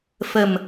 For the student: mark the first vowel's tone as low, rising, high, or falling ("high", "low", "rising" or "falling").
low